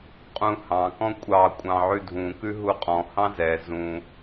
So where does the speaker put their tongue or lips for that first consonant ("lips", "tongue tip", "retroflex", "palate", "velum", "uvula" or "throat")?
uvula